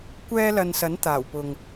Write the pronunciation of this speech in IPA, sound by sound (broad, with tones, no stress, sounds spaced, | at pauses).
kʷ ɛː˥ l ɐ˧ n s ɐ˨˥ n t̪ aː˨˩ w p ʊ˨ ŋ